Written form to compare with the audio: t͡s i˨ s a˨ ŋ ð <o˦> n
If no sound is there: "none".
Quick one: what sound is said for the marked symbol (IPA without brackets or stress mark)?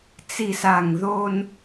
o˦